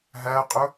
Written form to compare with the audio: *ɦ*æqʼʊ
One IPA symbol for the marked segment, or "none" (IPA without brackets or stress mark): ɦ